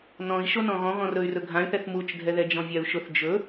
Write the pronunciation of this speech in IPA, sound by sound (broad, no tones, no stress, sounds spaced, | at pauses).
n ɔ̃ i̯ ʃ o n ɔ̃ ɣ ɔ̃ ɣ ɔ̃ r ɵ y̯ r ɵ ɡʱ ã y̯ θ ɛ θ m u t͡ʃ dʱ ɛ ð ɛ d͡ʒ ɔ̃ vʲ a u̯ ʃ ʊ θ d͡ʒ ɵ